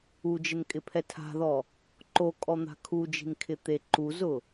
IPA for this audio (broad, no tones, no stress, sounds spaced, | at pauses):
u d͡ʒ ɪ n kʼ ɪ pʰ ɛ tʰ a̤ ð ɔ | ǃ o kʼ ɔ n̪ a̤ kʰ u d͡ʒ i̤ n kʰ ɪ t̪ e ǃ u z ʊ